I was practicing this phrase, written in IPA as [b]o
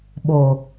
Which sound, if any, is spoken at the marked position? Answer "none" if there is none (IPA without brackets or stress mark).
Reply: ɓ